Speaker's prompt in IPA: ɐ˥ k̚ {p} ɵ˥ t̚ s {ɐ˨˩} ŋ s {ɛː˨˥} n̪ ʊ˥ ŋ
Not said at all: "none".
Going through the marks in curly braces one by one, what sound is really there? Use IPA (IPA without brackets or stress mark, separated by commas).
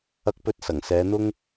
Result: p, ɐ˨˩, ɛː˨˧